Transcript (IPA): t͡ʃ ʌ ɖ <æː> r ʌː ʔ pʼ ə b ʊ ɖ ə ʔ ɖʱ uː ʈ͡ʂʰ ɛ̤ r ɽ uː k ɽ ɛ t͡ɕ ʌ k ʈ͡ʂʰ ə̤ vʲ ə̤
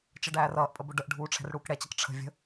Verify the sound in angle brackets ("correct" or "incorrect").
correct